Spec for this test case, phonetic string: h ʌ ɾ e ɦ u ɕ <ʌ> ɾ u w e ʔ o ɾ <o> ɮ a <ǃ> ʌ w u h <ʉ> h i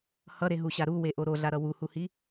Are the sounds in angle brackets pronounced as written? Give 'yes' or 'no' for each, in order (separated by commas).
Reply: no, yes, no, no